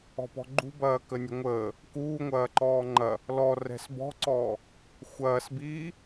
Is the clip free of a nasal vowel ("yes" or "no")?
yes